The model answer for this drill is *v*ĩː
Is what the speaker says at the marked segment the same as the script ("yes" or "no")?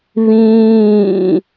no